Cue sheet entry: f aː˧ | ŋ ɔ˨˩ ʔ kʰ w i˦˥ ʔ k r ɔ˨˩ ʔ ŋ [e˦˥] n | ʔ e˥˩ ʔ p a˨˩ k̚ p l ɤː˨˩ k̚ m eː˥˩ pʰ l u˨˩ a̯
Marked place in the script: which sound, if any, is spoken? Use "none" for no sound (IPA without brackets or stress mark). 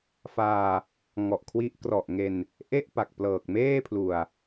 e˧